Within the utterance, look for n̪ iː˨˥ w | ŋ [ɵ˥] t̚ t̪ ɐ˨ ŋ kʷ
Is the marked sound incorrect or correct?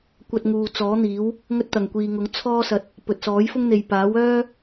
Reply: correct